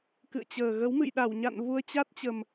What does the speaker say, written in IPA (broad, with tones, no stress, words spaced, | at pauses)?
kɨ̰˧˨ə̯t͡ɕəː˨˩ ɣə˨˦w mɨ̰˧˨jɗa˧˩wɲa̰˧˨n vu˧ə̯t͡ɕa˦˥t̚t͡ɕə˨˩m